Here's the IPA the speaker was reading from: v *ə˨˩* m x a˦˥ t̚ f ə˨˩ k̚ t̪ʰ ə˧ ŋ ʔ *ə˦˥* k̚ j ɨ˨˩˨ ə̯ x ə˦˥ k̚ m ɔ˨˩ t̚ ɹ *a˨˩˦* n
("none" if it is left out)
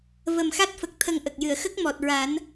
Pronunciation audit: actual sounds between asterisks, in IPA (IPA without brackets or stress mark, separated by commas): ə˨˩, ə˨˩, a˨˩˦